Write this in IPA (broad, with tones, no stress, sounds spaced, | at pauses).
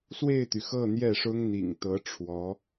s w e˥˩ ɪ̯ t̪ y˩ x ɤ˥˧ n̪ j ɛ˥˩ ʂ ʊ˥ ŋ n̪ ḭ˨˩ ŋ t̪ ɤ˧˥ ʈ͡ʂʰ w ɔ˧˥